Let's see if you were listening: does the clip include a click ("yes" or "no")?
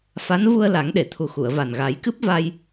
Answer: no